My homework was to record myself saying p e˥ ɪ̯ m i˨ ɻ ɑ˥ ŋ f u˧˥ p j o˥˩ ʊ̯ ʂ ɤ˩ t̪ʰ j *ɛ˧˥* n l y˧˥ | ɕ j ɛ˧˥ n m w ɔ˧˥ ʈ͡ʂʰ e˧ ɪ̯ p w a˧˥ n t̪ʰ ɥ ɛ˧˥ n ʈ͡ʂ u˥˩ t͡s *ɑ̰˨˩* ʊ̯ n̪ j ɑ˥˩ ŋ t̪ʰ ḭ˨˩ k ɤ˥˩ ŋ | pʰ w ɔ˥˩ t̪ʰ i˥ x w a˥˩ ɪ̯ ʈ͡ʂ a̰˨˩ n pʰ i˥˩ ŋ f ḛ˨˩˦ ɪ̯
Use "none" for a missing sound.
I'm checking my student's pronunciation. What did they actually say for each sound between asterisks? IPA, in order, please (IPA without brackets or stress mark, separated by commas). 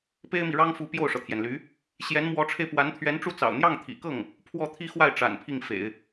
ɛ˩, ɑ̰˨˩